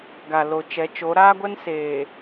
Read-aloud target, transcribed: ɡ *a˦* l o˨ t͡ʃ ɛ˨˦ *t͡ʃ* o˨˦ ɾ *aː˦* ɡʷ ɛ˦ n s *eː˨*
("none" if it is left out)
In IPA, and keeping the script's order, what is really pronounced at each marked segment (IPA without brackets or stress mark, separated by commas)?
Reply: a˨, t͡ʃ, aː˦, eː˨